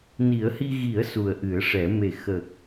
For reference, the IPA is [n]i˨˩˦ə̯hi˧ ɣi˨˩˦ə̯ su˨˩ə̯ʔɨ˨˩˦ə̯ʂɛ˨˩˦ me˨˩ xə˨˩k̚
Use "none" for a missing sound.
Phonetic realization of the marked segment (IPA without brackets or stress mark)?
n